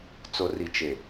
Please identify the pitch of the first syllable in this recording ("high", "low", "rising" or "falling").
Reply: low